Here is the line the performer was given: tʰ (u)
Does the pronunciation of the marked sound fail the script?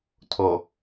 yes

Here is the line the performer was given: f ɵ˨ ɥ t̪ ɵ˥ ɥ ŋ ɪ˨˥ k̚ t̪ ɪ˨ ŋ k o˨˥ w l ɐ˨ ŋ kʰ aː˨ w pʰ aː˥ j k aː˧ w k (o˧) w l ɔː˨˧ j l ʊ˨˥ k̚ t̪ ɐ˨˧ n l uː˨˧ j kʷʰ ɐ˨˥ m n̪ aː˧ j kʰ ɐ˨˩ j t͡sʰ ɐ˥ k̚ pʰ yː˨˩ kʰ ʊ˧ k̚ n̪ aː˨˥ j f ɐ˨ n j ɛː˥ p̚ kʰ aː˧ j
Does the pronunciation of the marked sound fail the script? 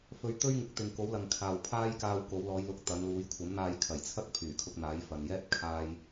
yes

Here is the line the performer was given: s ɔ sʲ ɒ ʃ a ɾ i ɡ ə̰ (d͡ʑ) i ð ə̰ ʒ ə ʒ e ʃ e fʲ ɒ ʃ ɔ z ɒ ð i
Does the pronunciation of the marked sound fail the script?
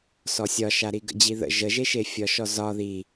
no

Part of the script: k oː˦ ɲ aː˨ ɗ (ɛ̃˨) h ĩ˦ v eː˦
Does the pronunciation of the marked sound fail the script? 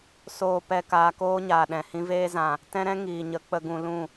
no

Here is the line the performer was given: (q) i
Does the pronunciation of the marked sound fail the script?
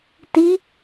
yes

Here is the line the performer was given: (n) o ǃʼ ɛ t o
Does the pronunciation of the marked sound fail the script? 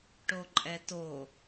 yes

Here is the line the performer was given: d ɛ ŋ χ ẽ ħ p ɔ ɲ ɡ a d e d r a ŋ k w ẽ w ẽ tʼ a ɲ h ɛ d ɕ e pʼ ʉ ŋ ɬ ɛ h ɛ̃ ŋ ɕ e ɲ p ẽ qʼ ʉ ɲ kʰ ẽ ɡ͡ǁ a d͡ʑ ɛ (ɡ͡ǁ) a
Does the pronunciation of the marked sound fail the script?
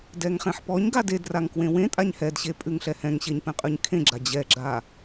no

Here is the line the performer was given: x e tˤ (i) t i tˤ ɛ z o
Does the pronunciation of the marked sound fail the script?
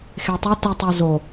yes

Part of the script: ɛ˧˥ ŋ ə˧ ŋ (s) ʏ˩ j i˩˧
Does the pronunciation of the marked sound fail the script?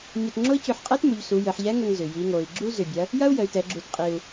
yes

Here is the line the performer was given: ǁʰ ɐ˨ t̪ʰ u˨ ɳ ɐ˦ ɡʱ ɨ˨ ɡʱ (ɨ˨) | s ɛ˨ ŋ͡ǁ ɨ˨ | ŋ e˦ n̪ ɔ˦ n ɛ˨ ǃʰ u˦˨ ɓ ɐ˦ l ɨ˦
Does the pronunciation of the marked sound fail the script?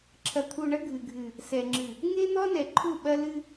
no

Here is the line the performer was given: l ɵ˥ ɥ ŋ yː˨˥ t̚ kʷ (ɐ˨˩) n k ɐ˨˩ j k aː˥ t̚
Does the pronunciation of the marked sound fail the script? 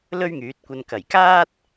yes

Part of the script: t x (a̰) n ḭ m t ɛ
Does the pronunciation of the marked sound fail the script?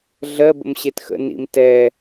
yes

